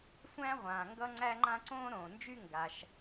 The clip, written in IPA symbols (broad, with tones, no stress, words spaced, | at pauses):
sʷæ̃˥ʁʷãː˩ ŋɡʌ˥ŋ͡ǀæ˥ŋ͡ǃã˥ ǀõː˥ɾõː˩nd͡ʒy˥ ŋɡa˩ʃ